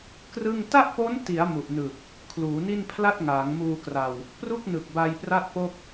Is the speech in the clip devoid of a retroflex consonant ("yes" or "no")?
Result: yes